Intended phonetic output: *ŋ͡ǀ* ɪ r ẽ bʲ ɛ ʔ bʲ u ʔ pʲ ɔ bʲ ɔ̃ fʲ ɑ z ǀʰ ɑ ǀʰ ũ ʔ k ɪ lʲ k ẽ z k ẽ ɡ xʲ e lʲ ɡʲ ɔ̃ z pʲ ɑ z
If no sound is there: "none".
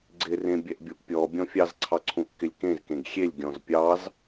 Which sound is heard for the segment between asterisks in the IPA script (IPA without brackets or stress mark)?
ɡ͡ǀ